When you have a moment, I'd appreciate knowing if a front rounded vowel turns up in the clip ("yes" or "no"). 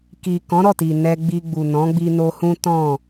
no